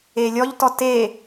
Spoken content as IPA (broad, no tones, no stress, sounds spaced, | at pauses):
e lʲ ɔ ʎ t ɔ t e